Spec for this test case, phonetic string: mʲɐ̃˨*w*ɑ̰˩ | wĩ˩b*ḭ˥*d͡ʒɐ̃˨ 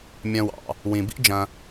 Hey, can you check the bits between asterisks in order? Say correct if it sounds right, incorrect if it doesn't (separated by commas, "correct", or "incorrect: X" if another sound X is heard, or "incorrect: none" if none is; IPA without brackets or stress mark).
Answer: correct, correct